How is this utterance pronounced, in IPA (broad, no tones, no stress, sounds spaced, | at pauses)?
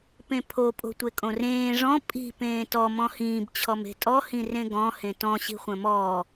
p ẽ pʰ o pʼ o̤ tʷ e kʼ õ r ẽː ʐ ɔ̃ pʼ i̤ p ẽː t ɔ m ɔ̃ h ĩː b t͡ɕʰ ɔ m e̤ tʼ ɔ h ĩ r ẽ ɡ ɔ̃ h ẽ t ɔ̃ ɕ i̤ χʷ ɐ̃ m ɔː